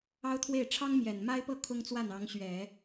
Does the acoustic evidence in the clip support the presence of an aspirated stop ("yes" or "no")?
yes